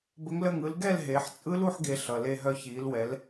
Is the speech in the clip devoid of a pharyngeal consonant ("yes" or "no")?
no